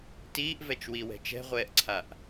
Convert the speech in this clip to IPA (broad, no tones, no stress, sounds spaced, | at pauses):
t iː ʔ v ɛ t͡ʃ w i w ɛ̤ t͡ʃ ɛ̤ ʁʷ ɛː ʔ ǀʰ a ʔ